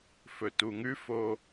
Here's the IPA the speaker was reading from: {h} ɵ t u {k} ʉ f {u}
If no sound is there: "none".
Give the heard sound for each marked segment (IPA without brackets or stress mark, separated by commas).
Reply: f, ŋ, o